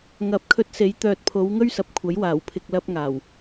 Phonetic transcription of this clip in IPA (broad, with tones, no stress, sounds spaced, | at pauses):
ŋ ɐ˨ p̚ kʰ ɵ˧ t̚ s e˨˥ j t̪ œː˨ t̚ pʰ o˨˧ w ŋ ɵ˥ ɥ s ɐ˨˥ p̚ kʷʰ ɐ˨˥ j w aː˨˩ w pʰ ɪ˨ k̚ l ɐ˧ p̚ ŋ aː˨˩ w